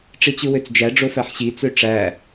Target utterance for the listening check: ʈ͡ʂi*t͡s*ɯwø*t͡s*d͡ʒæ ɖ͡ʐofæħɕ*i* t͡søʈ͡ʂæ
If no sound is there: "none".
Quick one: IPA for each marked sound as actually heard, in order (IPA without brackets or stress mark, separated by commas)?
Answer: t͡ɕ, t͡s, i